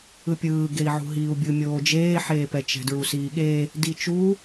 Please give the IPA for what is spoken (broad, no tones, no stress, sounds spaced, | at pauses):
ɯ pʲ ɯː ɡ e i̯ ʕ ṳ ɦ iː u̯ bʲ ɯ mʲ oː d͡ʒ eː ħ eː p ɛ t͡ʃ ɛ̤ d ɹ u s iː ɠ e | d i t͡ʃ u